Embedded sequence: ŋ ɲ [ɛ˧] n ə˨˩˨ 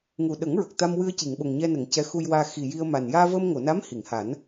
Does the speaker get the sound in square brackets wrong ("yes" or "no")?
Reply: no